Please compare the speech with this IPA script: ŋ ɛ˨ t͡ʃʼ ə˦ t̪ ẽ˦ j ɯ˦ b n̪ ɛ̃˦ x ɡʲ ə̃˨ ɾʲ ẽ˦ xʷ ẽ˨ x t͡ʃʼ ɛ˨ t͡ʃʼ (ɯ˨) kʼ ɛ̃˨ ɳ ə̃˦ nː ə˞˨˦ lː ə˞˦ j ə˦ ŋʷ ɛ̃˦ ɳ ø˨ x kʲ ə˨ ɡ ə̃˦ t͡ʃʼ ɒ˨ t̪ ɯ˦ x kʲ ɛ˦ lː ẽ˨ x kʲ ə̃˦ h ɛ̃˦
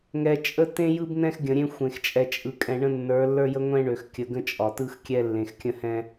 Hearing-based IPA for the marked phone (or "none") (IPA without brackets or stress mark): ɯ˨